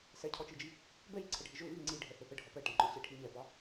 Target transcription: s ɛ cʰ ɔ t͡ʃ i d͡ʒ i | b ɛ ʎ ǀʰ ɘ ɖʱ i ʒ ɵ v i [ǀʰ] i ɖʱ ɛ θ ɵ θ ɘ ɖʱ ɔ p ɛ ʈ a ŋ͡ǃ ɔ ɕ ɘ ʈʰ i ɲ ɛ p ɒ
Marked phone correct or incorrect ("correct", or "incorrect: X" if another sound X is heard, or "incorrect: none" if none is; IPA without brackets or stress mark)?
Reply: incorrect: ŋ͡ǀ